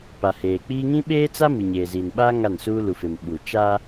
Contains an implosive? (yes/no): yes